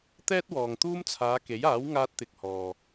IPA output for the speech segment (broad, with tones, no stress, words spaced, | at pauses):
t̪ɛː˥t̚wɔː˨ŋ t̪uː˥mt͡sʰaː˨˧ke˨˥jaː˨˥w ŋaː˥t̚t̪ɪ˧k̚hɔː˨